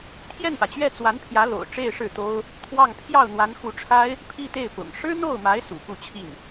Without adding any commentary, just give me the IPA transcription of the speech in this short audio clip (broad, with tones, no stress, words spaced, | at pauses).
t̪ʰjɛ˥˩npä˩t͡ɕɥɛ˥˩ t͡swa˧˥npʰjä˧˥ lo̰˨˩ʊ̯ ʈ͡ʂe˥˧ɪ̯ʂɻ̩˥˩t̪o˥ʊ̯ | t̪ʰwɑ˥˧ŋ pʰjɑ˥˩ʊ̯n̪wa˧˥nxu˧˥ʈ͡ʂʰa˥ɪ̯ | pʰi˥˧t̪e˥˩ɪ̯pʊ̰˨˩ŋ ʂɻ̩˥n̪o˥˩ʊ̯ma˧˥ɪ̯ sṵ˨˩fu˥˧t͡ɕʰi˥˩n